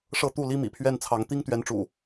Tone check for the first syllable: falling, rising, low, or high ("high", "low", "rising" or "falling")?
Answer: falling